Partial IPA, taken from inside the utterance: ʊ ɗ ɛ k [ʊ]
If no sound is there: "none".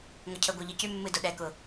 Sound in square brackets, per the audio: ʊ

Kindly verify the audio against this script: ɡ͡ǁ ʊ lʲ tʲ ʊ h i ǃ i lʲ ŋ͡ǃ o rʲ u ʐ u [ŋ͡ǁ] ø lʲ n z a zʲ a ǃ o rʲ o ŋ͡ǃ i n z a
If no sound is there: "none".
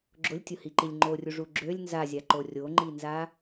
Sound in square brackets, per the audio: ɡ͡ǁ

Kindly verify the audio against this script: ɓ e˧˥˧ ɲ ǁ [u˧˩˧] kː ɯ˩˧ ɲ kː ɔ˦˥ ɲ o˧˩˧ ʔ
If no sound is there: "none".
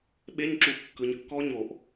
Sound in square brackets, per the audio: u˧˩˧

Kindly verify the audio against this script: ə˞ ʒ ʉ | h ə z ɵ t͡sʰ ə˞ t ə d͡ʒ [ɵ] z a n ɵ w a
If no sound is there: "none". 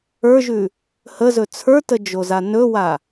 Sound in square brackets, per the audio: o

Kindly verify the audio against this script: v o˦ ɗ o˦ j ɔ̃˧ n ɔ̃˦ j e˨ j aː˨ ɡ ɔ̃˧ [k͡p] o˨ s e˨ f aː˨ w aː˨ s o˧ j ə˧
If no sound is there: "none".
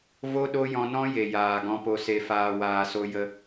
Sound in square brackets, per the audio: p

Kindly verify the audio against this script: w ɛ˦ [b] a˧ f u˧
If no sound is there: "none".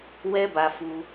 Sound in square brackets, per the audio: b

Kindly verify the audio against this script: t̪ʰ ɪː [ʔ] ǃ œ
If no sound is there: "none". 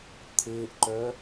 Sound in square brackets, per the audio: ʔ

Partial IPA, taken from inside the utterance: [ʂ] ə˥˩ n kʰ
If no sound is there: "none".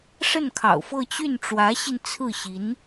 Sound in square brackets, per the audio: ʂ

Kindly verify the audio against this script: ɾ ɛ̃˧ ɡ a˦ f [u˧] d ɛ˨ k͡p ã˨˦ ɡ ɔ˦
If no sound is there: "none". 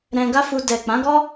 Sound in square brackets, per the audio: u˧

